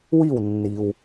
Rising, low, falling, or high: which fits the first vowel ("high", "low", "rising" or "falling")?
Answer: falling